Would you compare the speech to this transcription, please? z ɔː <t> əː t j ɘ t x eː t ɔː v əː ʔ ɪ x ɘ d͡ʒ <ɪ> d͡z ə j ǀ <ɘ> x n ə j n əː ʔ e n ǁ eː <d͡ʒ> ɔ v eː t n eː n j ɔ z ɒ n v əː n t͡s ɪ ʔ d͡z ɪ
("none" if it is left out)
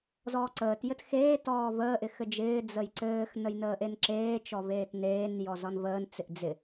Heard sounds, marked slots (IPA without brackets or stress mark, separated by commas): ǀ, ɪː, ɘː, t͡ʃ